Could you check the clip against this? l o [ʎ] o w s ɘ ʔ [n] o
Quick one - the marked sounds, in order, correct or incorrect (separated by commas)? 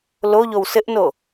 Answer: correct, correct